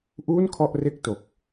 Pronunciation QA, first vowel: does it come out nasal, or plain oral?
oral